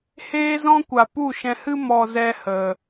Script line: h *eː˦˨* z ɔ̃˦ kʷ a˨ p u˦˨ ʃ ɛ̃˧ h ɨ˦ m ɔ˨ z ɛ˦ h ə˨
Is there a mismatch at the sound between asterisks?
yes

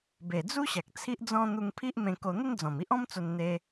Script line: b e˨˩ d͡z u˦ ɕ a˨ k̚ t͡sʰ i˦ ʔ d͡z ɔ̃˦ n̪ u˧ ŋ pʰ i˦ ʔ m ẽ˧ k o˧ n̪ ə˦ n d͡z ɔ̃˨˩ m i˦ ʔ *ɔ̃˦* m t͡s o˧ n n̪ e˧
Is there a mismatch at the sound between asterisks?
no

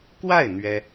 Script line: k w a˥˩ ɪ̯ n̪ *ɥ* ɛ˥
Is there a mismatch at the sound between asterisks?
no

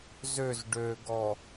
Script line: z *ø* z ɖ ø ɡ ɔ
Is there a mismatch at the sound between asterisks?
no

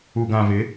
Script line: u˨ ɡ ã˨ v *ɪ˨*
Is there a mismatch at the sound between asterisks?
yes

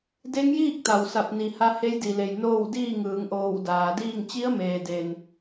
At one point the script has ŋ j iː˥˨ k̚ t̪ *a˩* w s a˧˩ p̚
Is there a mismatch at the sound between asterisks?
no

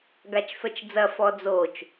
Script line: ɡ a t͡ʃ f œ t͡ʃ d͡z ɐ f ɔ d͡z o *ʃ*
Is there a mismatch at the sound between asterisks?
yes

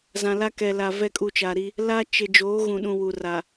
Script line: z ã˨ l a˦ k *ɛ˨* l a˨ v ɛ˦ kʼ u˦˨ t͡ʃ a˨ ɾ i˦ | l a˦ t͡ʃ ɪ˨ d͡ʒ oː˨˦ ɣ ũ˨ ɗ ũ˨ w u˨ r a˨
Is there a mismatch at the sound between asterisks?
no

